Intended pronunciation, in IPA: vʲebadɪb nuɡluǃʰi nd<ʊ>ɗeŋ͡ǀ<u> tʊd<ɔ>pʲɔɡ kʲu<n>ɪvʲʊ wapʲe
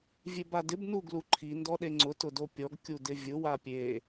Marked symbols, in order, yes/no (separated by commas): no, no, no, no